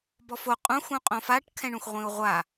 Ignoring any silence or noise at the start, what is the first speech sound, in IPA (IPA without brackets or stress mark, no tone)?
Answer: b